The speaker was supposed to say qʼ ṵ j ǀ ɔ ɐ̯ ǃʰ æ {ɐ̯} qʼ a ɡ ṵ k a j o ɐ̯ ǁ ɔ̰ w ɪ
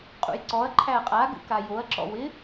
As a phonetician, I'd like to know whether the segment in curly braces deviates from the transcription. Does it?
no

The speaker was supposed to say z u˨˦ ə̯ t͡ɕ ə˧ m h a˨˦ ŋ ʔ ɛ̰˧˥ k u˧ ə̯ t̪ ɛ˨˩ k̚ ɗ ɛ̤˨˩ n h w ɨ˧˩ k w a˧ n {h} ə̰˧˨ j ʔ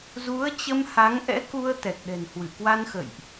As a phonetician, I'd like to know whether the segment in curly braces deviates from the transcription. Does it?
yes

